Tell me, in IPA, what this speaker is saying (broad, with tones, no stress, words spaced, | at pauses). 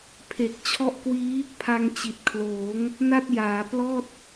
pʰe˨˩k̚ t͡ɕʰɔ˦˥ʔkwiː˦˥ | pʰa˧ŋt͡ɕi˨˩t̚kʰloː˩˦ŋ | na˥˩t̚jaː˩˦ plɔː˥˩t̚